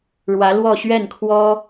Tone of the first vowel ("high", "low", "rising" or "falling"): rising